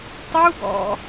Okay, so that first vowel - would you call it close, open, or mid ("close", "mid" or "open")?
close